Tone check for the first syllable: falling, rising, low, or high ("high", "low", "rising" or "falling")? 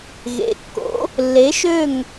rising